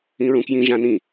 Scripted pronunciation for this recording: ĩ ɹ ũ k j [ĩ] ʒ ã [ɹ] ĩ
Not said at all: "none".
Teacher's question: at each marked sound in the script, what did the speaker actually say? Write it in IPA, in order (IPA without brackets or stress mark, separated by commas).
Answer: ĩ, n